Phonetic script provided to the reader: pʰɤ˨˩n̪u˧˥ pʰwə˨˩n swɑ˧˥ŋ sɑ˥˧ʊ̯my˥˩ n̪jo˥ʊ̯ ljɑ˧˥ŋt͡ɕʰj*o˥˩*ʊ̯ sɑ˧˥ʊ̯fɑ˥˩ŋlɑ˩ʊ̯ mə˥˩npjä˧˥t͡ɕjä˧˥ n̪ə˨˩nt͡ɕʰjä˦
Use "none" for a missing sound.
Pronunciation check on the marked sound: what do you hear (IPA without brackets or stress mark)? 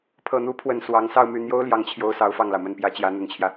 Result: o˧˥